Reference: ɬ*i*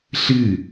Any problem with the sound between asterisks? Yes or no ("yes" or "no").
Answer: yes